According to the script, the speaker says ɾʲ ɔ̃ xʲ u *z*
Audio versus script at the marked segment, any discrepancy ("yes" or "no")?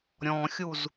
no